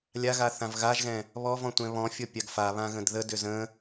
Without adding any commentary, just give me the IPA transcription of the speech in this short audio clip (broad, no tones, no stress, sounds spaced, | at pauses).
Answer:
lʲ a ɣ a θ ã v ɣ a ʒ ɣ ɛ̃ | β ɔ v ɔ̃ tʷ ɛ̃ β ɔ̃ fʲ ɔ pʲ a ɡ f a β ã ɣ ə̃ d ð ə d ʏ z ə̃